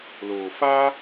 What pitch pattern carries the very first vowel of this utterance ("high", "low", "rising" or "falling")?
low